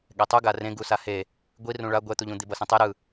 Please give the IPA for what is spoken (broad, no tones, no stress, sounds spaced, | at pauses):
ɠ ɛ tˤ u ɡ a r ẽ ɡ u s a h e | ɡʷ i r ũ ɭ a ɡʷ ɛ t̪ u ʎ ũ d̪ i b ʌ s ẽ tˤ e ɾ ɯ